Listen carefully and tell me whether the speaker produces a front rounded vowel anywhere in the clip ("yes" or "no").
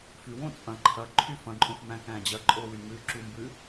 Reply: yes